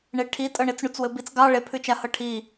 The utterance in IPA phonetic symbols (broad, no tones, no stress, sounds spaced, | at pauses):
ɳ e ʈʰ i tʼ ɤ ɳ e t͡s ɳ u t͡s w ɘ b i t͡s ɡ ɑ ɭ e pʰ ʉ t͡ʃ a h ɤ ʈʰ i